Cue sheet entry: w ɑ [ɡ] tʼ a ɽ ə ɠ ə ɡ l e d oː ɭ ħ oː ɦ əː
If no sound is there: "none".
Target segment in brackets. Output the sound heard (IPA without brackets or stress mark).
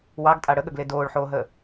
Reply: ɡ